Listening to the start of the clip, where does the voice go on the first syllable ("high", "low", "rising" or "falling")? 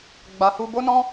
low